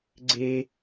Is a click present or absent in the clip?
present